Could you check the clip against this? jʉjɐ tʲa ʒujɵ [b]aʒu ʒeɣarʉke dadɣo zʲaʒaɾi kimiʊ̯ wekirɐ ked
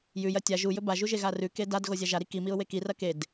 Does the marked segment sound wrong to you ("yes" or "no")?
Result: no